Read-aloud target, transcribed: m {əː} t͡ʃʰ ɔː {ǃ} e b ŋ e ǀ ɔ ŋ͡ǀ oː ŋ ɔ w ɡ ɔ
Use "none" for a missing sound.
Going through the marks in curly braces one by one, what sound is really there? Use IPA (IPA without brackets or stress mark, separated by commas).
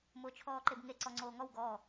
ʊː, ǃ